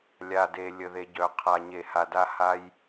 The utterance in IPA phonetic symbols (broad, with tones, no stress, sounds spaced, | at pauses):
lʲ a˨ d e˨ lʲ ə˨ ð e˨ ɟ œ˨ qʰ a˨ ɲ e˨ h a˨ d a˧ h a˦ j